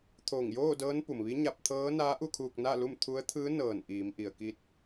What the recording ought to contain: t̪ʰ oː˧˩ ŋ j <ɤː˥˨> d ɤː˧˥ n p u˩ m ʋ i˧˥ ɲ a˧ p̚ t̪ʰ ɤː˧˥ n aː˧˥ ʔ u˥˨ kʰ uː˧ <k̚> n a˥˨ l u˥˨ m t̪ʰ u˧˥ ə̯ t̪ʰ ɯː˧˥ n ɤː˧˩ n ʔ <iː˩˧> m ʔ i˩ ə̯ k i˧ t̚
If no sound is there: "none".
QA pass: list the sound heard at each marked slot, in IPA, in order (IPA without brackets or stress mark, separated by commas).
oː˥˨, k̚, iː˩˧